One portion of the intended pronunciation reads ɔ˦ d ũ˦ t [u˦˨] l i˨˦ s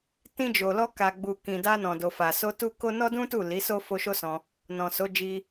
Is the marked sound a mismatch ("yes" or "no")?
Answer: no